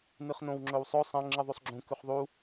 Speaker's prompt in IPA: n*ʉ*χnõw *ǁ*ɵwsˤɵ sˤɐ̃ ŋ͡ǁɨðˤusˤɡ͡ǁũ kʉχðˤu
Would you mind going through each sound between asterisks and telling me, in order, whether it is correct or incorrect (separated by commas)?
incorrect, incorrect